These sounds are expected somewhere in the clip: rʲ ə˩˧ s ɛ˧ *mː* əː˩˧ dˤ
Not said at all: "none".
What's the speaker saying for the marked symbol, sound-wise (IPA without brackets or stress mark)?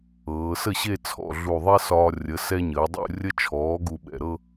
ɲ